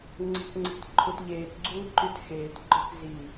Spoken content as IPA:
ŋ͡ǀ e̤ k ŋ͡ǀ e̤ t ǃʰ u t ʎ eː t ɡ͡ǀ uː ǃ y t x eː t ɡ͡ǃ œ k z i

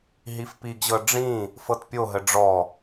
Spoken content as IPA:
ɦ i f p i ɡ ʑ ɤ ɖ͡ʐ ĩ | f ɤ t pʲ o ɦ ə ɖ͡ʐ ɔ

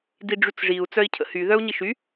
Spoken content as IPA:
d i ɖ͡ʐ y t͡s ʐ i u̯ t͡s œ i̯ cʰ ə̰ h y ð œ u̯ ɲ i ʃ y

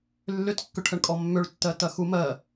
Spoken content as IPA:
lː ʏ t kː ʏ ʈʰ ə ɳ kʼ ɔ mː ʏ ɭ tː ɜ t ɐ x u m ɜ

